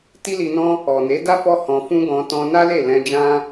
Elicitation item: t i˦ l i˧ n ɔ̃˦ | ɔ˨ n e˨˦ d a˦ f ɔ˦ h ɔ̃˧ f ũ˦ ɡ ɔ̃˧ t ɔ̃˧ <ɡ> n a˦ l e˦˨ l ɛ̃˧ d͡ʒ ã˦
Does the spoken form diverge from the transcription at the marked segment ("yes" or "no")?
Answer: yes